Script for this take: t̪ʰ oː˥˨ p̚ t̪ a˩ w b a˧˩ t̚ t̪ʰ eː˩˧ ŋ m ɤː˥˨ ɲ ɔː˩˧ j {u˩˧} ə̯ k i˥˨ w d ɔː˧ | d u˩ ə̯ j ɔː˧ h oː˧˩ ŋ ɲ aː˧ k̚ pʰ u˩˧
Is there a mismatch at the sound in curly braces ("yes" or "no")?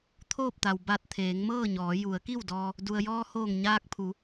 no